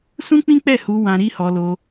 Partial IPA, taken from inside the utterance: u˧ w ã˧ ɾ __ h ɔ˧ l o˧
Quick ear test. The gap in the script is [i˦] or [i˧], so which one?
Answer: i˦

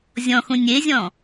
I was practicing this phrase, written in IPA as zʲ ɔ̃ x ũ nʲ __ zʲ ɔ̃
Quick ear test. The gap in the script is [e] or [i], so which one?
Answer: e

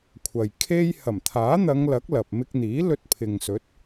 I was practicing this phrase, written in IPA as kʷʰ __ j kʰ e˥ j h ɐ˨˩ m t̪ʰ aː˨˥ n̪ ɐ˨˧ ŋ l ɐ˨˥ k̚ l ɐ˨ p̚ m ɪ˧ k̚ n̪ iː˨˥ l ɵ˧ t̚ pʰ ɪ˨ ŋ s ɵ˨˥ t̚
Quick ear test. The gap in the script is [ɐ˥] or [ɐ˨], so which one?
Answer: ɐ˨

